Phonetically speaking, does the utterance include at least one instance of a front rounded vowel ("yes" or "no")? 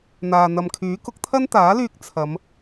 yes